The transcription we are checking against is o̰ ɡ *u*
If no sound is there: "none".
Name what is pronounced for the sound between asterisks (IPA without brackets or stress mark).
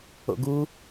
u